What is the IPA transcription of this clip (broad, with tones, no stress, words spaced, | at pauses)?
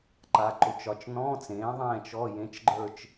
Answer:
ǃa˧˥˧ǃʊ˧˥t͡ʃɒ˧˥t͡ʃ nɔ̃˧˥˧t͡sẽː˩˥ ðˤɛ̃ː˥˧t͡ʃɔ˧˥˧jẽ˧˥t͡ʃɡ͡ǃə˞˥˧t͡ʃ